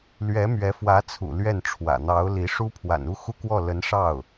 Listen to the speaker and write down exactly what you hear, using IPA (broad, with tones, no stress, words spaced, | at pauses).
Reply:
lɥɛ˧˥ mɥɛ˧˥ fwä˧˥t͡sʰṵ˨˩ lɥɛ˥˩n ʈ͡ʂʰwä̰˨˩n̪ɑ˧˥ʊ̯li˧˥ʂu˥ pʰwa̰˨˩nu˥˧xu˥˧kwɔ˥˩ lə˧˥nʂɑ˥˩ʊ̯